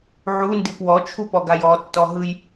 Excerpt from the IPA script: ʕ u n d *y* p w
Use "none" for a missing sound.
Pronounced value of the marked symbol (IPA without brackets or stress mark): i